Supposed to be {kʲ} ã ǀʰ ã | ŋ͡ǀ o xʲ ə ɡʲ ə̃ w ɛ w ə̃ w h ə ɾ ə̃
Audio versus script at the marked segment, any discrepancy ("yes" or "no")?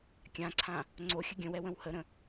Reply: no